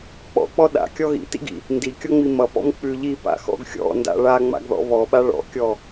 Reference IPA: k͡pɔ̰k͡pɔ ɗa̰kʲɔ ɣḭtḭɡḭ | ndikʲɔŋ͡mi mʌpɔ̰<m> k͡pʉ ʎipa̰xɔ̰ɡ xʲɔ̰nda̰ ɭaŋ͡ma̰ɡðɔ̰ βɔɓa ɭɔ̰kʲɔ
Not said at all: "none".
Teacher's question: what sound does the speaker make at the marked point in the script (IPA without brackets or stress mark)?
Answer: m